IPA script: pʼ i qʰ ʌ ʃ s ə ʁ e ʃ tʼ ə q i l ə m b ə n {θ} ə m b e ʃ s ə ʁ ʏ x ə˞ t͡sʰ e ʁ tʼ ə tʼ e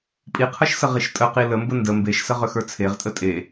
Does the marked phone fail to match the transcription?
yes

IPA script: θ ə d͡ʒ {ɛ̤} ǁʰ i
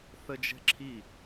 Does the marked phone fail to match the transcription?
no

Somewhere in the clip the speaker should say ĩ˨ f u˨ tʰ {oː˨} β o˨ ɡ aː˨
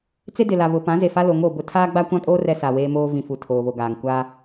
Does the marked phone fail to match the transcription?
no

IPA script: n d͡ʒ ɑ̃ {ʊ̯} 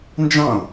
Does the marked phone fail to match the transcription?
no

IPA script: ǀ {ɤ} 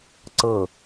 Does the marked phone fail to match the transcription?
no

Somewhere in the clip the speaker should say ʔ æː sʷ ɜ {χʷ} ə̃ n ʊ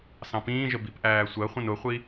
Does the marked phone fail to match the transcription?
no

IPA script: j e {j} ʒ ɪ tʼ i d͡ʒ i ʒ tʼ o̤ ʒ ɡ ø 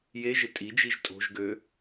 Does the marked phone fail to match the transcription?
yes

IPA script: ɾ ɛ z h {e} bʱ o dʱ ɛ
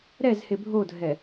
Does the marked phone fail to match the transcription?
no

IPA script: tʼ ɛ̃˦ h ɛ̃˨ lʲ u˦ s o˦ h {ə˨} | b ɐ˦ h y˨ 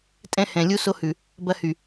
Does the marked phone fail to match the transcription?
yes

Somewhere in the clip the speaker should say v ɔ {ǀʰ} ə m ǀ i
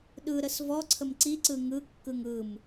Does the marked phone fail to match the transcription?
no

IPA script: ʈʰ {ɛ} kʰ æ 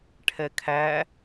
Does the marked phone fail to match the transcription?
no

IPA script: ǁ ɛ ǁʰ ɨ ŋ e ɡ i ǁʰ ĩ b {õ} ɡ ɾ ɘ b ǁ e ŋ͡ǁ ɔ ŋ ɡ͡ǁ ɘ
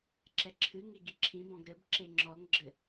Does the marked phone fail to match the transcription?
yes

